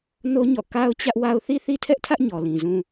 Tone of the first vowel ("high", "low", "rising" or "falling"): high